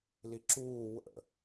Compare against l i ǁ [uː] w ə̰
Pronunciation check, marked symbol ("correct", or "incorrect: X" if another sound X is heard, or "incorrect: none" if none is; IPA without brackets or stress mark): correct